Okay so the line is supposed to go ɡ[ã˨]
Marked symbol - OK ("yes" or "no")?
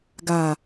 no